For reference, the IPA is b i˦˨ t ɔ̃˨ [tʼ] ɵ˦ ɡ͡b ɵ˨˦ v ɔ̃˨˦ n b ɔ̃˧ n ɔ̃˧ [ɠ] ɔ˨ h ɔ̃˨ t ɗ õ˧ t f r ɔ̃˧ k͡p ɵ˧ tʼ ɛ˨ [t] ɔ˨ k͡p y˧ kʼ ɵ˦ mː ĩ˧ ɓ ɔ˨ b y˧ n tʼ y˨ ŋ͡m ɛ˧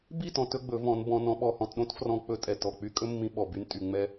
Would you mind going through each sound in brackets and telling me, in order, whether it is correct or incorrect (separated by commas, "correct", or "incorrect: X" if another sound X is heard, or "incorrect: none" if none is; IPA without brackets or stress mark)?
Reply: incorrect: t, incorrect: ɓ, correct